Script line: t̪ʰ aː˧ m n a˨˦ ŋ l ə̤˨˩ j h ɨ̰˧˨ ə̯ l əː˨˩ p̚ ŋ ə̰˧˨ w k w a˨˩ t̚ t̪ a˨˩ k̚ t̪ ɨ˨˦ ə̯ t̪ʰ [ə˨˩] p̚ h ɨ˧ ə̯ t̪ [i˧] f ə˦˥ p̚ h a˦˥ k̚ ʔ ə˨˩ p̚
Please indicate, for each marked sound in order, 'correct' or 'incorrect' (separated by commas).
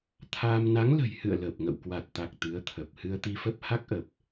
correct, correct